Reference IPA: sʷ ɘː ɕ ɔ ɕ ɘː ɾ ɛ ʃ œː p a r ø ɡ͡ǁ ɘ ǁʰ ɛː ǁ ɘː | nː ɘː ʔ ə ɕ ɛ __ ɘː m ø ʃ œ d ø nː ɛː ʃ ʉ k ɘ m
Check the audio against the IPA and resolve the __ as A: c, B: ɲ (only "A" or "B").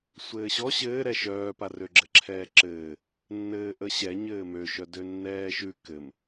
B